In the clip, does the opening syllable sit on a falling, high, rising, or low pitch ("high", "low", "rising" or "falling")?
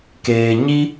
low